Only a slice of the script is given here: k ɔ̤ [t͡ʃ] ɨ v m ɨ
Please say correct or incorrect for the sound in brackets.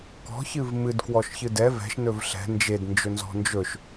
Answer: incorrect